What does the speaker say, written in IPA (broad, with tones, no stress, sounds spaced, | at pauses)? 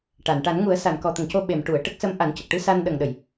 ʈ a˨˩˨ n ʈ a˨˩˦ n ŋ u˨˩˦ ə̯ s a˨˩˨ n k ɔ˨˩˨ t̪ ə˨˩˨ ŋ c o˧ ɓ e˨˩˨ m ʈ u˨˩˨ ə̯ ʈ ə˦˥ k̚ s ə˧˥ m ʔ a˨˩˦ n c ə˨˩ k̚ ʈ ɨ˧˥ s a˧ n ɗ ə˨˩ ŋ ɗ ə˨˩˨ j